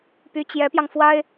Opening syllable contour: rising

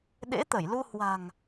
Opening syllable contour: rising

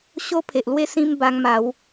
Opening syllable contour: high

